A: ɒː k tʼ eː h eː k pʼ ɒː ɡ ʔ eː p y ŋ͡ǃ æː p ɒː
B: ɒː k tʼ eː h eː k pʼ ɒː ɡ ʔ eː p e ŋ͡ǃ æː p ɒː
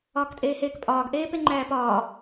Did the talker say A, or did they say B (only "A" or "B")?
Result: B